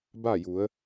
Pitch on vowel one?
falling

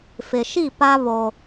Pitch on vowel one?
low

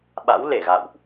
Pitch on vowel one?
rising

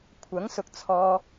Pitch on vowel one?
rising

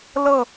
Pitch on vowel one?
falling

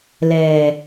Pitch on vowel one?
low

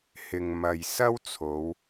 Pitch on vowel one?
low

